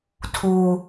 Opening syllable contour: high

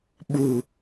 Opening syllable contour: low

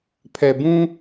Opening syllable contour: low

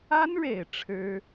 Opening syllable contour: high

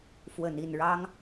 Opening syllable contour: low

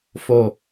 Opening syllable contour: low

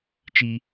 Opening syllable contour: high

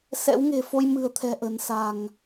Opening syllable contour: rising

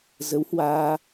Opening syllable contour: rising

